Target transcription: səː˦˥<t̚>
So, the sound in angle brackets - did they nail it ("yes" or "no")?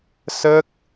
no